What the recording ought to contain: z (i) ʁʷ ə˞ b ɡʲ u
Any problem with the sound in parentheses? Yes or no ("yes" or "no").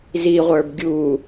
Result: no